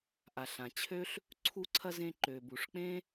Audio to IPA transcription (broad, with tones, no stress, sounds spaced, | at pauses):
ʔ a˩ ɬ ã˩ t͡ɕʰ ø˥ ɬ | ǀʰ u˧ ǀʰ ɐ˧ z ẽ˧ ǃ ø˩ b u˩ ʂ k͡p ẽ˥